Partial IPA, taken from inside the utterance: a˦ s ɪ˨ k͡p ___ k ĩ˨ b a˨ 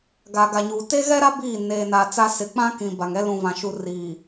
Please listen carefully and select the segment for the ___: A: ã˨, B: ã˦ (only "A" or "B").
B